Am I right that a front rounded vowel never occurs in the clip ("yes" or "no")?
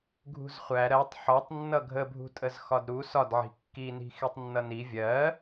yes